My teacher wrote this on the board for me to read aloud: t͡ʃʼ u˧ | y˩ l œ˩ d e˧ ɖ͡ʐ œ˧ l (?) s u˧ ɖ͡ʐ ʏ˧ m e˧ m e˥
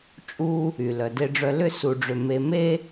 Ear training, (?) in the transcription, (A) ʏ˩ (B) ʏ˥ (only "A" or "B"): B